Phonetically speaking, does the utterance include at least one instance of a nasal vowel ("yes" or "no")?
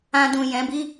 yes